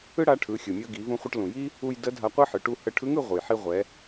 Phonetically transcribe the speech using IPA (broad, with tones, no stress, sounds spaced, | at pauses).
ɯ˥ ɽ a˧˥ ʈʰ ɯ˩˧ xʲ ɯ˩ mʲ ɤ˧ ɡ i˩˧ v ũ˧ χʷ ə˧ ʈ l ũ˩ j i˥ | u˧ j d ə˧˥ dʱ a˧ qʷ ɤ˥ ħ ɯ˩˧ ʈ u˧ h ə˧ ʈʰ ɯ˧˥ ŋ ɯ˧ ʁʷ ɯ˩ j ħ i˧ ʁʷ ɛ˩˧